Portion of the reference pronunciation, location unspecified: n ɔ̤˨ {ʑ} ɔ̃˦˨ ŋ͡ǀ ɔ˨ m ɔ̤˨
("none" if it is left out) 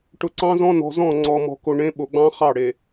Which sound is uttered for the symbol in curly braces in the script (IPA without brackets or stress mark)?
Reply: z